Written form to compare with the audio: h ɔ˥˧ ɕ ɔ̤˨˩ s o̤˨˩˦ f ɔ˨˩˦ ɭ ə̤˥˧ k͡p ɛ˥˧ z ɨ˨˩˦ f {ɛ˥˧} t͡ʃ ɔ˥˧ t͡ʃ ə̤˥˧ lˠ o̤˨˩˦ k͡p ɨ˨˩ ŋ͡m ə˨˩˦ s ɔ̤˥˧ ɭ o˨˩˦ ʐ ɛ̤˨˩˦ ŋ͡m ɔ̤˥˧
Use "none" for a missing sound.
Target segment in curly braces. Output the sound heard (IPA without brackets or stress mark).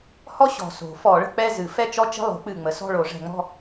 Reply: ɛ˥˧